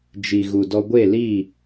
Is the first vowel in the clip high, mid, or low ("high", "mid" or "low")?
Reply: high